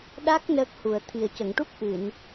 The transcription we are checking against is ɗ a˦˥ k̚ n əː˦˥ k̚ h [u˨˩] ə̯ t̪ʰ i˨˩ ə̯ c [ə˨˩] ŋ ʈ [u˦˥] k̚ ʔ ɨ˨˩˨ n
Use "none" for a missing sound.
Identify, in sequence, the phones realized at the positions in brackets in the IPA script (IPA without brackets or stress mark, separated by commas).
u˨˩, ə˨˩˨, u˦˥